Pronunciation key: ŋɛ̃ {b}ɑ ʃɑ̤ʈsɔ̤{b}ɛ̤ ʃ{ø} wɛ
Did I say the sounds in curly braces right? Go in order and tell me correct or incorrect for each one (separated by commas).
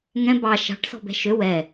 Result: correct, correct, correct